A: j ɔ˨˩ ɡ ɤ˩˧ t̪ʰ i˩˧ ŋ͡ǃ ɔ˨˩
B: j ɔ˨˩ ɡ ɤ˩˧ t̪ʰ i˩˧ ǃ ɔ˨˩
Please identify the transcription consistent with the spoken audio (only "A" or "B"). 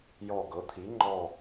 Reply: A